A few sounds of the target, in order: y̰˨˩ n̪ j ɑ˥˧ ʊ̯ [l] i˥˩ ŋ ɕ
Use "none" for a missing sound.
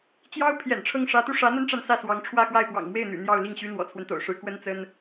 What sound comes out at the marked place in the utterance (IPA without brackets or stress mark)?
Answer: l